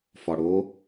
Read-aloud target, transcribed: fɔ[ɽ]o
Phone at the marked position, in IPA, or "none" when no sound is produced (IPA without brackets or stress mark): ɽ